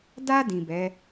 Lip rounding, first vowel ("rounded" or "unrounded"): unrounded